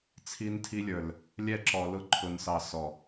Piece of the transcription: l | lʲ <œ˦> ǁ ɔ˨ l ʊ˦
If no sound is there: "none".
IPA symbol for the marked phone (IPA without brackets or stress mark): ɛ˦